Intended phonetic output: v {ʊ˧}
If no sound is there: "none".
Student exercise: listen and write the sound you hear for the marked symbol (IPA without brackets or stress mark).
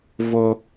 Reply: ʊ˧